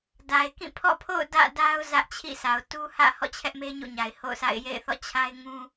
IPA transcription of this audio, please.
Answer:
d a˨ ɪ̯ k ĩ˦˨ pʰ ɔ̰˦˨ pʰ o̰˦˨ ʊ̯ d ä̰˦˨ d a˦ ʊ̯ z ä˦ ʔ t͡ɕʰ ḭ˦˨ sʰ a˨ ʊ̯ t u˦ h ä̰˦˨ h ɔ̰˦˨ t͡ɕʰ ɛ˦ ʔ m e˦ ɲ ṵ˦˨ ɲ a˨ ɪ̯ h o̰˦˨ ʊ̯ sʰ a̰˦˨ ɪ̯ j ḛ˦˨ ɪ̯ θ ɔ̰˦˨ t͡ɕʰ a˦ ɪ̯ ŋ ũ˦

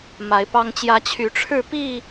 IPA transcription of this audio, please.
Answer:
m a˨˦ ɪ̯ p ɑ˦ ŋ t͡ɕ j ä˦ t͡ɕʰ y˨˦ ʈ͡ʂʰ ɻ̩˥˨ p i˥˨

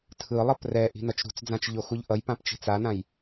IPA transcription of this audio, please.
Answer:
tʰ ɯ lˠ ʌ p r ɛ ʔ i̤ n ʌ t͡ʃ ɾ ṳ t͡s d͡z ã t͡ʃ ʎ o x u ʎ ʔ ʌ j p ã p t͡ʃ i̤ t͡s a n ã j

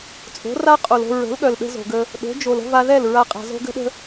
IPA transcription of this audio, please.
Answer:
t͡sʼ o̤˨˦ r a˦ qʼ o˨ l o̤˧ ɹ ə̤˨˦ l ɠ œ˨ l ɗ ə̤˧ z o̤˨ ɡ ə˧ | ɗ o̤˨˦ d͡ʒ o˨ l ə̤˦ v a˧ ð ɛ˦˨ l ɹ a˦ qʼ a̤˧ z o̤˦ ɡ ə̤˦ ɗ ə̤˦

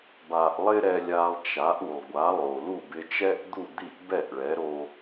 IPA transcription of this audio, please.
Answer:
b a˧ ʔ lˠ ɪ˥ ɾ ɛ˧ lʲ a˧ lˠ t͡ʃ a˩˥ ʔ u˩ lˠ ɡʷ a˩˥ lˠ o˩ l u˥˩ b ɪ˧ t͡ʃ ɛ˥ ʔ d̪ u˥˩ d̪ i˥˩ ʔ b ɛ˥˩ ʔ ɭ ɛ˩˥ ɾ o˧

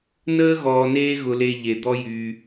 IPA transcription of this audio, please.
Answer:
n əː˥ ɣ ɔː˨ n eː˦ ɣ ʊ˨ l e˨ ʎ e˩ d̪ ɔ˥ j y˨

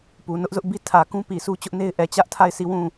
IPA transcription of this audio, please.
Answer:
p u˨ n ʊ˦ ʔ z ʊ˦ ʔ b i˦ tʰ ä˨ k ũ˦ p i˨ sʰ u˦ t͡ɕ ʊ˦ ʔ n e˦ ɪ̯ ʔ ɛ˨ t͡ɕ ä˦ ʔ tʰ a˦˨ ɪ̯ sʰ i˦˨ w ũ˦˨

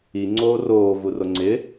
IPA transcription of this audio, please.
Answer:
i ŋ͡ǀ oː r oː v u r o ŋ͡ǀ ɪ

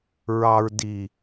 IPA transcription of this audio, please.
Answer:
ɹ ɑ˨ ɹ d i˨

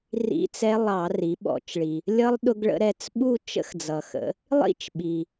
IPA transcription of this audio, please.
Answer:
r ḭ˦˥ t͡s ɛ˦˥ lˠ ɑ˧˩˧ r i˩˧ ɓ ɔ̰˧˩˧ t͡ʃ ɭ i˩ | lʲ ʌ˦˥ lˠ ɗ ʊ˧ ɡ ɭ ə̰˧ ɾ ɛ˧ t͡s ɓ u˥˧ t͡ʃ ə̰˦˥ x d͡z ʌ˩ x ə̰˩˧ | lˠ ḭ˥˧ t͡ʃ ɓ i˩

